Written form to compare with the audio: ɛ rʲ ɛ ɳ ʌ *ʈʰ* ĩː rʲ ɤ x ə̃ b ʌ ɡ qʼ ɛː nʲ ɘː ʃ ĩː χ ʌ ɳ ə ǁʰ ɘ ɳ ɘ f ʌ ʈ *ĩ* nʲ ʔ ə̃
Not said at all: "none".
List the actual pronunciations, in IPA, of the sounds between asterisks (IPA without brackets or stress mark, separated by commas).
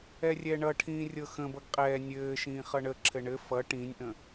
ʈʰ, ĩ